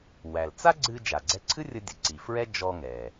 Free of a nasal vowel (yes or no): yes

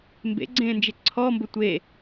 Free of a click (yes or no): no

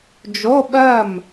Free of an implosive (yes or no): no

